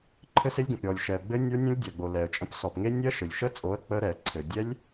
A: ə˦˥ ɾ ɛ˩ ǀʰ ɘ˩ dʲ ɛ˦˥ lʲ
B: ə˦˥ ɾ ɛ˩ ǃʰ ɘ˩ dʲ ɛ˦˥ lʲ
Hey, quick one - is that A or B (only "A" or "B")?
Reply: A